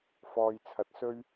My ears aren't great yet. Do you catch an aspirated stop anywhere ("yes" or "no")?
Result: yes